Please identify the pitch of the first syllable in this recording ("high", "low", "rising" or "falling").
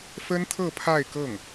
high